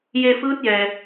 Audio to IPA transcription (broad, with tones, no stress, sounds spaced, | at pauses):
j e˧ f ɯː˧˥ t̚ j ɛː˩